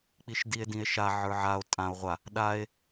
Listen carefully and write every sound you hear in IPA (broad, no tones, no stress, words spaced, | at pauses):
k͡piʃdie̯dĩe̯ʃa ʕə˞ʕao̯ tʼão̯ ʁʷa | ɗae̯